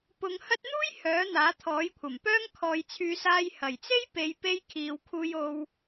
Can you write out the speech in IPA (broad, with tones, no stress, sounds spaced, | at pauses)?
p ʊ˨˧ ŋ h ɐ˥ t̚ n̪ uː˥ j h œː˨˥ n̪ aː˨˥ t̪ʰ ɔː˨˥ j kʷʰ ɐ˨˩ m p œː˥ ŋ kʰ ɔː˨ j t͡sʰ yː˨˧ s aː˧ j h ɐ˨˩ j t͡s e˥ j p e˨ j p e˧ j kʰ iː˨ w kʰ uː˧ j o˧ w